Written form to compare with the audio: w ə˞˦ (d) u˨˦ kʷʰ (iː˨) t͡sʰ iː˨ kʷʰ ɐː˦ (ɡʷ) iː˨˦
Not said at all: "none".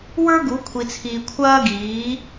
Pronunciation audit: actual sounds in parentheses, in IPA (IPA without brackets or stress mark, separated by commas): ɡ, i˨, ɡ